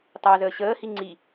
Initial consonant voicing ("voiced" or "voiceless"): voiceless